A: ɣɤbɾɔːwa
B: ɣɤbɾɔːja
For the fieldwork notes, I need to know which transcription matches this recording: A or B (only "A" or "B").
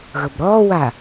A